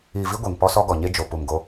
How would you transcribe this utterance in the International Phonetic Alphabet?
iː˨ v i˦ ɡʷ e˨ ŋ p ɔ˦ s ɔ˦ ɡ ɔ˨ ɲ e˦ d͡ʒ o˨ p u˨ m ɡ o˦

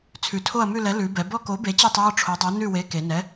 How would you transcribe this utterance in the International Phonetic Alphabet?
t͡sʰ ʉ˩˧ tʰ o˦˨ ɐ̯ m ʉ˦˨ l ɛ˨˥ l ʉ˩˧ b ɛ˩˧ b ɔ˦˨ k o˨˥ b e˨˥ t͡ɕ e˦˨ tˤ j ɔ˦˨ ʈ͡ʂʰ o˨˥ dˤ o˨˥ n ʉ˦˨ w e˨˥ k e˩˧ n ɛ˨˥

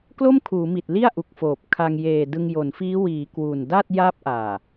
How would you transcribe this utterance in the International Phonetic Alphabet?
k l o˥˩ m kʰ uː˩˦ m i˨˩ t̚ l i˥˩ a̯ ʔ u˨˩ k̚ f oː˨˩ p̚ kʰ a˧ ŋ j eː˨˩ d ɯ˧ ŋ j o˩˦ n f iː˦˥ w iː˩˦ k w u˨˩ n d a˥˩ t̚ j a˥˩ p̚ ʔ aː˨˩

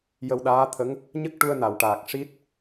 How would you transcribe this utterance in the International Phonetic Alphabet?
j ə˧ w ɗ aː˧˥ t̪ʰ ə˧˥ ŋ | ɲ ə˦˥ k̚ ʈ u˧ ə̯ n a˨˩˨ w ʈ aː˨˩ k̚ ʂ i˦˥ t̚

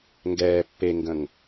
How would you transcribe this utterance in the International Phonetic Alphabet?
ŋ ɡ ɛː pː e ŋ ɡ ə̃ ŋ

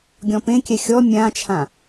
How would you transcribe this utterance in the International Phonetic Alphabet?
ɡʲ ɔ̃ p ẽ kʲ ɛ xʲ ɔ mʲ ã t͡ʃʰ ã

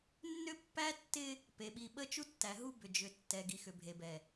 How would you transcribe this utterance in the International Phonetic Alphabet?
nː ʏ˦ pː æ˦ tː ɪ˦ | p e˨ ɓ i˨ ɓ ə˦ t͡ʃ u˦ tː æ˨ ɦ u˦ b ʏ˨ d͡ʒ ʏ˨ tː ɛ˨ ɡ i˨ x ʏ˨ bʱ e˨ b ɛ˨

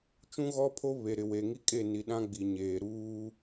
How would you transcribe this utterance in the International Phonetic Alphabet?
t͡ʃ ũ˦ ɣ ɔ˦ pʰ o˦ β e˨ ɾ ɪ˨ w e˨ ŋ i˦ kʼ e˦˨ n i˨ ɗ ã˦ ɡ͡b i˨ ɲ eː˨ ɾ uː˦

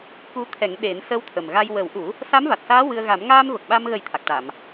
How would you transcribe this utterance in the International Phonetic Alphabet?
k u˧˥ t̪ʰ ɛ˨˩˦ ŋ ɗ e˨˩˦ n s ə˧˥ w t̪ʰ ə˨˩ m ɣ a˧ j w ə˨˩˦ w ʔ u˨˩˦ | s a˧˥ m v a˨˩ t̚ s aː˧˥ w ɨ˧ ə̯ ɣ a˨˩˦ m ŋ aː˧ m v ə˨˩ k̚ ɓ a˧ m ɣ ə˨˩˦ j t̪ʰ a˨˩ k̚ ʈ a˨˩˨ m

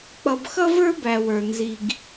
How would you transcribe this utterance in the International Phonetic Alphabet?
k͡p ʌ˨ b x ʌ˦ v ə˞˦ b æ˨ w ə˞˨ n z i˨ ɡ

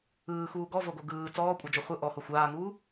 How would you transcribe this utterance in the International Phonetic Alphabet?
ɯː x uː ɡ ɔ v o ɡ o ɡ ɯː t͡s ɔː kʷʼ ɤ d͡ʒ o χʷ ɯ ʔ ɔ h o xʷ aː ŋ uː

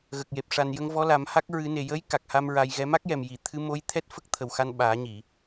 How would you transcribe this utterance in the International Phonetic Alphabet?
ɣ ə˨˩ k̚ j e˨˩ p̚ ʂ a˨˩ n j ə˧ ŋ v ɔ˧˥ l a˨˩˦ m h a˦˥ k̚ ɹ ɨ˨˩˦ n e˨˩ j ə˧˥ j k a˨˩ k̚ h a˧ m ɹ a˧ j ɣ ɛ˧˥ m a˦˥ k̚ j ɛ˨˩ m j i˨˩˨ t̪ʰ ɨ˧˥ m o˧˥ j t̪ʰ ɛ˦˥ t̚ f ə˦˥ k̚ t̪ʰ ə˨˩ w x a˧ n ɓ aː˨˩˦ ɲ i˨˩˨

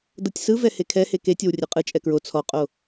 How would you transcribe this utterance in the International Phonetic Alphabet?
d ɤ tʲ s ɯ v ɛ h e kʰ ɛ h e k e tʲ o w rʲ ɛ qʼ ɯ t͡ʃʼ ɛ k ɹ o t͡sʰ ɔ qʼ o

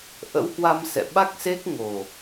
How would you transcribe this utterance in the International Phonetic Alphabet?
ʔ ə̰˧˥ w h w a˧ m s ɛ̰˧˨ ɓ a˦˥ k̚ s e˦˥ k̚ ŋ o˨˩

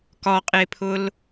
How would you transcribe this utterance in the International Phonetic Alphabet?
k ɒ qʼ e pʰ ʊ l

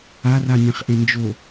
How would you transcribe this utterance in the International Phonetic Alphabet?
a r a nʲ ẽ χ ʔ ẽ n d͡ʒ o

